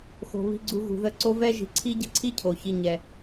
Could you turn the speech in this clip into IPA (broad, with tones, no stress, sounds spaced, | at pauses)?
x o̤˩ β i̤˨ ɡ͡ǀ u˨ ɣ ṳ˩ ð ə˨ ǀ o˦ v ɛ˥ ʒ i̤˨ ǀʰ i˦ ɟ ə̤˥ ǀʰ i˥ cʰ o˩ ç i˨ ɲ ɛ˩